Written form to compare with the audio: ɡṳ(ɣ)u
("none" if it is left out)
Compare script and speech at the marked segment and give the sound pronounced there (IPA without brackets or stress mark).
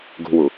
w